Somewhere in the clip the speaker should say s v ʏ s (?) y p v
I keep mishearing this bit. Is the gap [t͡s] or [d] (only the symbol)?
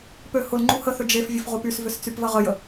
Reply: t͡s